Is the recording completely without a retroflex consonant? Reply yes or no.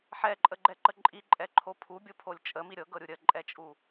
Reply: yes